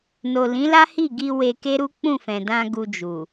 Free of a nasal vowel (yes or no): no